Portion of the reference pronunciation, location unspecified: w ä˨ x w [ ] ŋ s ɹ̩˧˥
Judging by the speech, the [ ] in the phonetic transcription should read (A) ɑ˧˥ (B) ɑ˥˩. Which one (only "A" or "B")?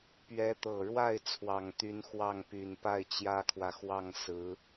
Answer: B